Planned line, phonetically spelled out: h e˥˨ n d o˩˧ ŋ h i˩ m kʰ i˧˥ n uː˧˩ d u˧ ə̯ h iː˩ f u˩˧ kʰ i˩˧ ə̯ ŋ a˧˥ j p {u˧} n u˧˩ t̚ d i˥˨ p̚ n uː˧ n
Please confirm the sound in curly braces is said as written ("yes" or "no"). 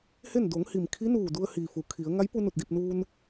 yes